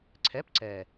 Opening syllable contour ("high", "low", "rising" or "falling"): rising